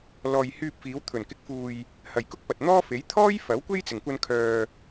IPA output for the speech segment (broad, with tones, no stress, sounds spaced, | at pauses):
l ɔː˧ j h yː˧ p̚ f iː˨˧ w t̪ʰ ɵ˨˩ n k ɪ˨˥ k̚ f uː˨ j | h ɐ˨ j k ʊ˥ k̚ p ɐ˨ t̚ n̪ ɔː˥ f e˨˥ j t̪ʰ ɔː˥ j f ɐ˨˥ w kʷ e˥ j t͡s ɪ˨˩ ŋ kʷ ɐ˧ n kʰ œː˨